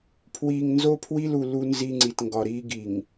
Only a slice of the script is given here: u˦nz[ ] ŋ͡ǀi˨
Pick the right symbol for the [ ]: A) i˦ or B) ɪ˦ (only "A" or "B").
A